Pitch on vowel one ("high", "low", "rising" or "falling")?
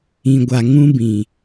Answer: low